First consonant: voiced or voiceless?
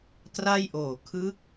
voiceless